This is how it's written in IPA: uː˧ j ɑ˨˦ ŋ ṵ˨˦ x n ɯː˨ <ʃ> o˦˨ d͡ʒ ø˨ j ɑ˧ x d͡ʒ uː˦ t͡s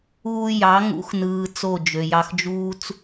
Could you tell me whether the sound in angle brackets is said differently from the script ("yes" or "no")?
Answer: yes